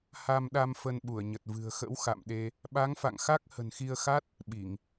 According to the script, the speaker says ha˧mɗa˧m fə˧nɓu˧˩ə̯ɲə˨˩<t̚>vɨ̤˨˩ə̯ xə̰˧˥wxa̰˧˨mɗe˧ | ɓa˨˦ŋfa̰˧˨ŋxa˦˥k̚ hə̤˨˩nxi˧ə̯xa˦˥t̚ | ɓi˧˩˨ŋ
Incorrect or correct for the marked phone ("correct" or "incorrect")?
correct